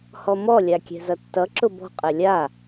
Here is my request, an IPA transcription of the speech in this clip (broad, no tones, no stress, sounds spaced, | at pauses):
h ɔ m ɔ lʲ a kʲ ɛ̤ z ʌ tː ʌ ǁ ʊ b ɔ̤ qʼ ɛ lʲ a